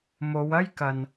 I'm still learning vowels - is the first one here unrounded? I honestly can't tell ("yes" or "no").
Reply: no